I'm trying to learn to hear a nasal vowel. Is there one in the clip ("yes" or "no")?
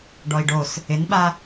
no